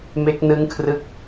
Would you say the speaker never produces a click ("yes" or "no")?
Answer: yes